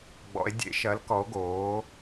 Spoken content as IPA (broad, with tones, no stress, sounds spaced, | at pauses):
ɡ͡b ɔ̰˩˧ e̯ dʲ ḛ˧˩˧ ʃ ɐ˩˥ l k ɔ˩˥ o̯ ɡ oː˩˥